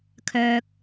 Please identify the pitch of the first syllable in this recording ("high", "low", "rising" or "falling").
high